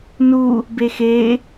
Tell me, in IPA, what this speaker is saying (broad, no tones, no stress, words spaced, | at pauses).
nu | bexe